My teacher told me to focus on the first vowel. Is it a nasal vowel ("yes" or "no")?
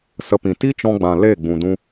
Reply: no